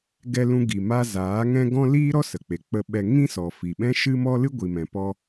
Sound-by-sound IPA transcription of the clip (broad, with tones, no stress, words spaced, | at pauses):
ɡɛ˧lũ˧ɡi˨ma˧ zaː˨˦ ŋɛ̃˦ ɡɔ̃˦ liː˦ɾɔ˦ sə˨k͡pe˨ k͡pə˧ɓɛ˧ ŋĩ˦sɔ˨fi˨ ɓɛ̃˦ʃɨ˦mɔ˦ lɨ˦ɡʷi˨mɛ̃˨pɔ˧